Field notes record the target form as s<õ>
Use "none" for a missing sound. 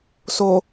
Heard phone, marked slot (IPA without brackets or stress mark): o